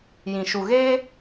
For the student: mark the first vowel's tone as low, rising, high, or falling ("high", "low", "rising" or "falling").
low